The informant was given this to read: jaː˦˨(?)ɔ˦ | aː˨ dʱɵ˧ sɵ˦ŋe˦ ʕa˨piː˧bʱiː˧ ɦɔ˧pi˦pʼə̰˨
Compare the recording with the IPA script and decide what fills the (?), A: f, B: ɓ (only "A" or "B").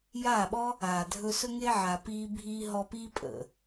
B